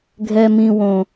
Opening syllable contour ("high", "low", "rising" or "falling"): high